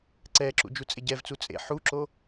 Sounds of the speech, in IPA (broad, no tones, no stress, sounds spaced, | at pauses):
ǀ ɛ ǁ ṵ d͡ʒ u t͡sʼ e ɟ ɛ v t͡s u t͡sʼ ḛ ħ u ǁ o